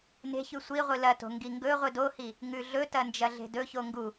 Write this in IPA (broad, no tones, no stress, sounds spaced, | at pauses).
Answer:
n e̤ ç ʉ sʷ i ʁʷ ɨ l ɐ t o̤ ŋ ɡ i ŋ ɡ ɵ ʁʷ ɨ d o h i | ŋ ʉ ɮ ɵ t ɐ n d͡ʒ ɐ ɮ e̤ d ɵ ç o ŋ ɡ u